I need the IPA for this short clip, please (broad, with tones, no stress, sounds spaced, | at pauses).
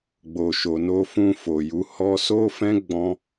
ɡ͡b o˨ ʃ o˨ n o˧ f ũ˧ f o˨ j u˨˦ h ɔ˧ s o˦ f ɛ̃˦ ɡ͡b ɔ̃˦